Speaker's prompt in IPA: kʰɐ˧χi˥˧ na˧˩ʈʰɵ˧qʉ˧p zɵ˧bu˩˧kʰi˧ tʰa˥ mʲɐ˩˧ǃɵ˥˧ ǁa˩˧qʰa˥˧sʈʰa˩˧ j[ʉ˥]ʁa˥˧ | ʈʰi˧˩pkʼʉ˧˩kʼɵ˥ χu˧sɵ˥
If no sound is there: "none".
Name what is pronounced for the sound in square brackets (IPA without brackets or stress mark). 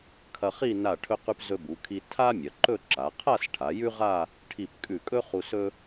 ʉ˥